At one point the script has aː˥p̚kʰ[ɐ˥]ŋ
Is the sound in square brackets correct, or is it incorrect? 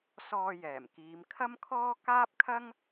correct